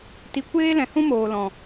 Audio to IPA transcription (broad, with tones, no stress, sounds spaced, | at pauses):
t i˧ kʷ eː˦ l ɛ̃˨ h ũ˦ m oː˨ l ɔ̃˨